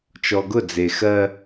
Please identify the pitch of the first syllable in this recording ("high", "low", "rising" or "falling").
low